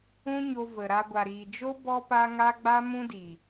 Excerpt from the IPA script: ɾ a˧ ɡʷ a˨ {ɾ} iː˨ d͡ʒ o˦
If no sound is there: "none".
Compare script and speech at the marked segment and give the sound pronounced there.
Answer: ɾ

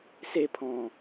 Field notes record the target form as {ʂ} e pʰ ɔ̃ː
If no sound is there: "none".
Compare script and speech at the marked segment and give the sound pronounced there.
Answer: s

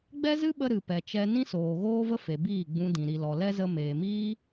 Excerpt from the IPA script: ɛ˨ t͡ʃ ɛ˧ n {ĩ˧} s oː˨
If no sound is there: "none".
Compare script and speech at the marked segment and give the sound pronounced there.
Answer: ĩ˦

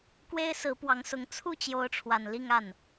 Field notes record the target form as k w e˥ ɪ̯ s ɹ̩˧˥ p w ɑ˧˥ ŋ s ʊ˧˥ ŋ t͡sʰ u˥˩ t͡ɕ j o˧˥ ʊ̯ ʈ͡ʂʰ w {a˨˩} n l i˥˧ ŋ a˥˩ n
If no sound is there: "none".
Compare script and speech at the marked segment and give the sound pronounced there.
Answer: a˨˩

